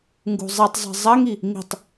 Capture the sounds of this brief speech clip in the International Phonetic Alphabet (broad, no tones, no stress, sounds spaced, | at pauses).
ŋ ɡ ṳ zˤ i tˤ zˤ i̤ zˤ ɐ ŋ i | ŋ i̤ tˤ